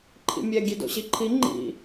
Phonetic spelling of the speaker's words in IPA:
ǃʰ ḭ mʲ ɛ ɡʲ e d o̰ ɕ i ǃʰ i ŋ͡ǃ ḭ

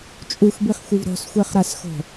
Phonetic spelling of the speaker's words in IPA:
t͡ʃʼ u x b i χ xʷ ɯ v ɾ o̤ s xʷ e χ ɾ a s x o̤

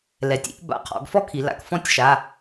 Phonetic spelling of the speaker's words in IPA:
l ɛ˩˧ tʲ ḭ˥˧ ʔ b a̰˩˧˩ qʰ ɔ̰˩˧ ɡ f ɔ˥ kʰ i˩˧ l a̰˩˧ k f ɔ̃˥˧ tʲ ʃ a˩˧˩

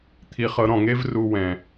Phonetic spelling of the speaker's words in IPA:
t̪ʰ i˧ χ ɤ˧ ɾ ɔ̃˦˨ ŋ e˦ v r u˧ w ɛ̃˨

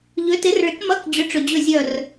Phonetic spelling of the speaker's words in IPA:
ʎ ø˨˥ t ɪ˨˥ r ɭ ɪ˨˥ k m ɐ˧˥˧ k d͡ʑ ʏ˨˥ ʈ͡ʂ ʏ˨ d͡ʑ ø˦˨ zʲ œ˦˨ r

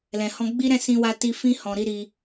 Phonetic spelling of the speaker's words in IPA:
l ɛ̃˨ h ɔ̃˧ ɡ͡b i˦ ɾ ɛ̃˦˨ s ĩ˧ w a˧ t i˧ f ĩ˦ h ɔ̃˧ ɾ i˦ ɾ i˧

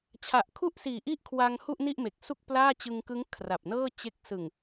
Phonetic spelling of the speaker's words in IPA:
t͡ɕʰ a˨˩ ʔ kʰ u˥˩ ʔ s iː˨˩ ʔ i˥˩ ʔ kʰ w a˧ ŋ h u˥˩ ʔ n i˥˩ ʔ m e˨˩ k̚ s u˥˩ k̚ p l aː˥˩ t͡ɕ ɯ˧ ŋ k ɯ˦˥ ŋ kʰ r a˨˩ p̚ n ɤː˥˩ t͡ɕ e˦˥ k̚ s ɯ˨˩ ŋ

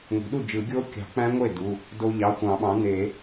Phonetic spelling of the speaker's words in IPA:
ŋʷ i̤˩˥ ɗ u˥˩ d͡ʒ ɯ˨˩˦ ɡʲ o˦˥ kʲ ɑ̤˨˩˦ k͡p æ̃˦˥ ŋʷ e˥˩ d u˩˧˩ | d o˧ ʎ ɑ˩˧˩ xʷ ɑ̃˨˩˦ ɓ ɑ̃˩˥ n e˨˩˦

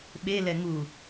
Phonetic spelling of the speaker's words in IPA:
ɓ e l ɛ ŋ u

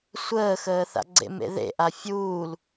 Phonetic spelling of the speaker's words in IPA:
sʷ əː x əː θ a̰ ɡ͡ǀ ḛ m ḛ ð ḛ ʔ a fʲ uː l

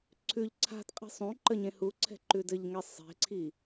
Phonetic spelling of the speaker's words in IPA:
ǀʰ ʉ ʎ ǀʰ a̤ t qʼ i̤ sˤ ũ ǃ ə ɲ ẽ h u ǀʰ ɛ̤ ǃ ʉ d ɘ ʎ ŋ ɛ sˤ e̤ ǀʰ i

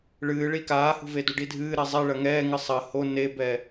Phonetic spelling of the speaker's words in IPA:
ɭ ɨː ɭ i k aː h ṳ v e d u ɖ i dʱ ɨː ɾ ɛ zˤ e ɭ ɐ ŋ ɛː ŋ ɨ sˤ ɐ h o n e b ɛ

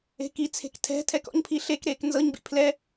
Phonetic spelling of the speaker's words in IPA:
e̤ k i t͡sʰ e̤ k tʰ ɛ̤ tʰ ɛ k ɔ̰ ɲ pʰ i ɬ e k ɾ eː k n z ɤ ɲ b ḭ pʰ l ɛ

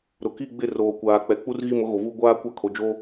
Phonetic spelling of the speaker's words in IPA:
ɾ ʊ˨ k i˦˨ ɡ͡b ɪ˦˨ r oː˨ kʷ aː˨ k͡p ɛ˨ k͡p u˦ r ɣ i˦˨ m ʊ˦ ɣ o˨ v u˦ ɡʷ aː˦ kʷ a˦ kʰ o˨ d͡ʒ oː˦

